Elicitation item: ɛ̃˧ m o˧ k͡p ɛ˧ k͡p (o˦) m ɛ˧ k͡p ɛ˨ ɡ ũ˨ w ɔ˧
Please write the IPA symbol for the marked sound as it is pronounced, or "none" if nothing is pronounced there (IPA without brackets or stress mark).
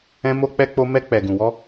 o˧